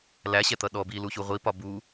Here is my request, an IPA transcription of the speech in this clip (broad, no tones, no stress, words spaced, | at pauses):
læɕɛt̪ʌ ɗɔ biluçu ʁʷipɒ bu